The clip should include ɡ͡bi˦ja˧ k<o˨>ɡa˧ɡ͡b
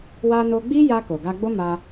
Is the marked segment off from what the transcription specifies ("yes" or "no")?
no